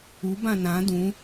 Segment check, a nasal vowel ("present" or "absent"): present